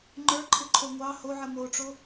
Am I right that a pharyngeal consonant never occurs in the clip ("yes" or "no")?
no